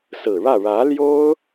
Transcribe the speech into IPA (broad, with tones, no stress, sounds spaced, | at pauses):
s ɹ̩˨˩ ɻ ä˥˩ ɻ ä˧˥ l j o˥ ʊ̯